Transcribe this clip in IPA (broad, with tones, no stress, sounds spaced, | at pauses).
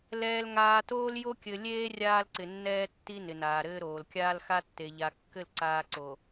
l ɛː˨ l ŋ aː˨ t oː˦ l j o˦ kʲ ɘ˨ lʲ eː˦ rʲ aː˦ l ǀ ɪ˨ nː ɛː˦ tː i˦ n ɪ˨ n aː˨ ɾ ɘː˦ ɾ oː˨ l kʲ aː˦ l x a˦ tː e˨ ʎ a˨ kː ɘ˦˨ l ǀ aː˦ ǀ o˨